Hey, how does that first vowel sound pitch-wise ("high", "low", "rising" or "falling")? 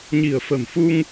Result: low